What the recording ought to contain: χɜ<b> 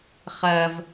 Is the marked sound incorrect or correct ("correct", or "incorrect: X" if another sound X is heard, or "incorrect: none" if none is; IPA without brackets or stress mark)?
incorrect: v